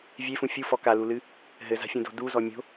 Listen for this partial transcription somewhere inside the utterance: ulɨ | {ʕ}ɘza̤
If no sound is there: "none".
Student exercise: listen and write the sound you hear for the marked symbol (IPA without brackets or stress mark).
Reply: ɦ